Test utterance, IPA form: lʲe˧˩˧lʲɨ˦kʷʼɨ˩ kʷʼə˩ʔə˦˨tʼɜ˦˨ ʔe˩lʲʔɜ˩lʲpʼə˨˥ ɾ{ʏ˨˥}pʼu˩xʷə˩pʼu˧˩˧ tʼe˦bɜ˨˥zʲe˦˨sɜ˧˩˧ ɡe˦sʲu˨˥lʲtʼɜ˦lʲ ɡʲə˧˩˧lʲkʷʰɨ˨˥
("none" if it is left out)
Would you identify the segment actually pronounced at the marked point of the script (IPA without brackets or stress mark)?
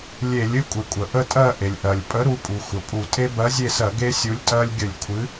u˨˥